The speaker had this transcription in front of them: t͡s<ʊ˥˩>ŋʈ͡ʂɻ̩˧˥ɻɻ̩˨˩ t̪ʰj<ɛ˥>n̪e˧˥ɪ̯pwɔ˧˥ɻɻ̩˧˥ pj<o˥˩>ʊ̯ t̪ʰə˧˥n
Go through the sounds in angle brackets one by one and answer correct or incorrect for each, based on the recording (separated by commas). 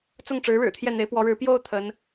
correct, incorrect, correct